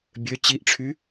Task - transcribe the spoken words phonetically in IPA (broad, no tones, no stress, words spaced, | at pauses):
bʲø t͡ɕiʔʈ͡ʂʰy